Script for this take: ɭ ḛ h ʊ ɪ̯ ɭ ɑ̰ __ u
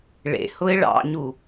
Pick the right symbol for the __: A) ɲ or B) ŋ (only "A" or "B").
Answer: A